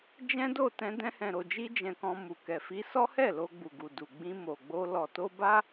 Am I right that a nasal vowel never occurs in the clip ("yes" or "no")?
no